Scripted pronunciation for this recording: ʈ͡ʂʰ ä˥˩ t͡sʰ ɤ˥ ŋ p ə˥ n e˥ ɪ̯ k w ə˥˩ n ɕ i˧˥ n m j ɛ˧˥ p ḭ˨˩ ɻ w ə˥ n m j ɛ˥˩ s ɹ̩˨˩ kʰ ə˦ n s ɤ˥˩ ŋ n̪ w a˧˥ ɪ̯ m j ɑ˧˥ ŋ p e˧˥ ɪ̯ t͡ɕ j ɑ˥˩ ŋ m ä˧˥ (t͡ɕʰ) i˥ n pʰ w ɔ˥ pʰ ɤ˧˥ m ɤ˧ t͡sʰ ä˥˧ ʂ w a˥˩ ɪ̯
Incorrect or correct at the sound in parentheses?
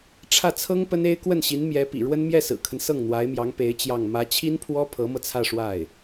correct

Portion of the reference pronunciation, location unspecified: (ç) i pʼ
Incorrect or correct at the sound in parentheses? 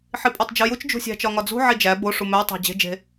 incorrect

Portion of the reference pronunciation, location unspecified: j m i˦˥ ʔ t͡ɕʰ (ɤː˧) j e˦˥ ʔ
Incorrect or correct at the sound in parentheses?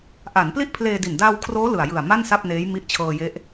correct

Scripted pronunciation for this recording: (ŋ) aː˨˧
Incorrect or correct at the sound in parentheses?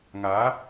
correct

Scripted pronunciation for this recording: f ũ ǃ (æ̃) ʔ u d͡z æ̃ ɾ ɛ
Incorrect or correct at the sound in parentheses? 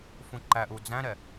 incorrect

